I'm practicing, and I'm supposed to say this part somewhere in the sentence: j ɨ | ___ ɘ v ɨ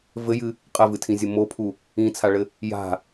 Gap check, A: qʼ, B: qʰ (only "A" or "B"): A